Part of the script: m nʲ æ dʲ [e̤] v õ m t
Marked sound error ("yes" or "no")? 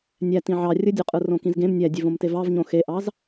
yes